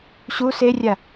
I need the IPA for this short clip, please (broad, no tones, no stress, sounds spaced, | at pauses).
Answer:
ɕ u s e rʲ a